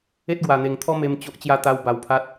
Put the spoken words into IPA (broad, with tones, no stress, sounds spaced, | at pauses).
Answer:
e˦ t̚ ɡ w a˨˩ n̪ e˨˩ ŋ t̪ʰ ɔ˦ m e˧ m t͡ɕ o˦ ʔ t͡ɕ j a˥˧ t̪ a˦ w b a˧ w pʰ a˦ t̚